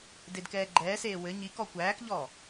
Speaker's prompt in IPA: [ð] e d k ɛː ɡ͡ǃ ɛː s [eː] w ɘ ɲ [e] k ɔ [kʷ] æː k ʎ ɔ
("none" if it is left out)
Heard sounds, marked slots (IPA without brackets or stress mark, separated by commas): d, eː, i, kʷ